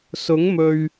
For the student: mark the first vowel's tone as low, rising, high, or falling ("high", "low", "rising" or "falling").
rising